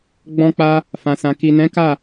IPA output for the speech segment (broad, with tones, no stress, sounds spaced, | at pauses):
ɡ͡b ɔ̃˧ k͡p a˧ | f ã˨ s ã˨ k i˨ n ɛ̃˨˦ k a˦˨